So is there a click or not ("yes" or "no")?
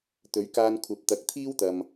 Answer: no